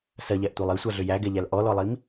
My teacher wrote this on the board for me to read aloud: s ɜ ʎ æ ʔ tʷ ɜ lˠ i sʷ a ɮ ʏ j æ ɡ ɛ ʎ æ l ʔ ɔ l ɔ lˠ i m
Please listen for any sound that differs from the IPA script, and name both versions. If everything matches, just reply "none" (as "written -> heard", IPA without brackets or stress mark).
none